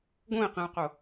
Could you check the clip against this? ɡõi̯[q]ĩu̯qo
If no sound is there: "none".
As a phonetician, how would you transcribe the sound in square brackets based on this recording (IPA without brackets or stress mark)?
q